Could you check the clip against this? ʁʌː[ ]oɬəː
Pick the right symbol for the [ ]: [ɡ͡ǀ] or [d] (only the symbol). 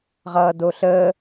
d